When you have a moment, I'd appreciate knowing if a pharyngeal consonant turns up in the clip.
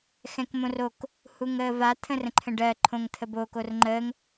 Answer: no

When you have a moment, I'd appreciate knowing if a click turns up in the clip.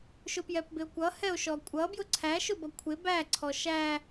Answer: yes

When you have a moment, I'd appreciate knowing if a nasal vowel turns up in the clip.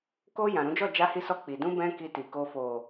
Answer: yes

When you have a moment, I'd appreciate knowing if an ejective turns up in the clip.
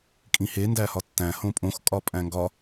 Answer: yes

